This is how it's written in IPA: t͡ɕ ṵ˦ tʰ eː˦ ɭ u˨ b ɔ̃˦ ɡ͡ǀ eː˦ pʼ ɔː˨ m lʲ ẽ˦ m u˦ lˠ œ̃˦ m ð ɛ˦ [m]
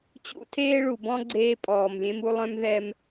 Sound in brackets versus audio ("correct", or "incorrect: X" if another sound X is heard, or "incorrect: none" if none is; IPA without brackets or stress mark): correct